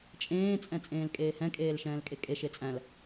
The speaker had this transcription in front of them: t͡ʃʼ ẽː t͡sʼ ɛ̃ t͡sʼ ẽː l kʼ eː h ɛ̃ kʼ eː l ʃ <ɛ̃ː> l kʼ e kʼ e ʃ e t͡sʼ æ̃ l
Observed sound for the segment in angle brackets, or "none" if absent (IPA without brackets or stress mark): ɛ̃ː